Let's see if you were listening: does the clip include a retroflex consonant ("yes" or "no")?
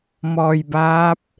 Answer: no